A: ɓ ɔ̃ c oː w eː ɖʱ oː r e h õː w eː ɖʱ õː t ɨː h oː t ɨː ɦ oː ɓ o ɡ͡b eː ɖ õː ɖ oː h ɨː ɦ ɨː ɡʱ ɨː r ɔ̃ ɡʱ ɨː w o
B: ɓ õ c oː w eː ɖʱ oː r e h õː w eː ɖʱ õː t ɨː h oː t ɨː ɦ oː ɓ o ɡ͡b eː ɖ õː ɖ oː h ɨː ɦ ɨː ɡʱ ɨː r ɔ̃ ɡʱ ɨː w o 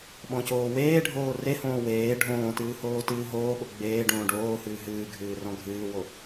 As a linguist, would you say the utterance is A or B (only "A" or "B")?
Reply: A